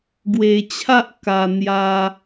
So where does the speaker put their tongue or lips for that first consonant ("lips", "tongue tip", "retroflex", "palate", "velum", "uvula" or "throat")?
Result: velum